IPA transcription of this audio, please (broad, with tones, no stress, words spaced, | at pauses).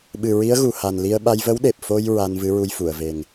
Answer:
ɓɨ˨˩ ɹi˧˥ə̯ɣu˨˩ha˨˩nli˧ə̯ ɓa˧jvə˧˥wɗe˨˩p̚ fo˧j ɹa˧n vɨ˧˥ɹu˧jfu˨˩˨ə̯ve˨˩ŋ